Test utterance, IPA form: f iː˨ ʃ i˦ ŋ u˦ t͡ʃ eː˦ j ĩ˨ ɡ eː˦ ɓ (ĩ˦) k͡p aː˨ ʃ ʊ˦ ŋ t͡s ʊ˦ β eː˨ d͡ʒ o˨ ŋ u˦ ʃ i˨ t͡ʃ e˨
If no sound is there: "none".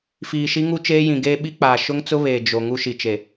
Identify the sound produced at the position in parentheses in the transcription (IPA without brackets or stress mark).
i˦